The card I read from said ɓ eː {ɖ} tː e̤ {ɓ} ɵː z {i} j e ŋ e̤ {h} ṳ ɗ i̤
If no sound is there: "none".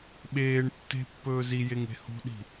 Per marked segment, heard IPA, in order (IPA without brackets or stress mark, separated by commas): ɳ, pː, i, h